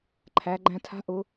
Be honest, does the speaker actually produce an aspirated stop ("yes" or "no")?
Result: yes